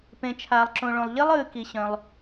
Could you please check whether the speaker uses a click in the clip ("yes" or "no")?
yes